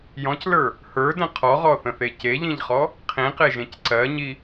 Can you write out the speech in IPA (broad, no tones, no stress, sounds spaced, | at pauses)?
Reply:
j ɔ̃ c l ə˞ | h ə˞ d ə̃ qʰ ɔ ʁ ɔ θ ə̃ θ e c e ʎ ĩ ʎ χ ɔ | qʰ ĩ q e ʒ ẽ c ǀ ɜ ɲ i